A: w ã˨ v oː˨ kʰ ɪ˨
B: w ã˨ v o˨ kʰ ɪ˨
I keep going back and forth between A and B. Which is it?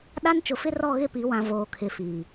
A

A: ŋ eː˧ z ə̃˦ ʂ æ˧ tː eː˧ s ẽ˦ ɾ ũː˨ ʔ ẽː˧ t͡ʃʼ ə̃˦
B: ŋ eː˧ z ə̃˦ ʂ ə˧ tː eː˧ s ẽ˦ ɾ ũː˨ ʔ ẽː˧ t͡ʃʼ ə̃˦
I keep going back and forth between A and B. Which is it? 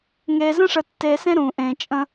B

